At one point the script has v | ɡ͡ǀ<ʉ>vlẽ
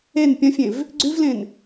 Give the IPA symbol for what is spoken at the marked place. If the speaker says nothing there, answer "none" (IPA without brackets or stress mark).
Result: ʉ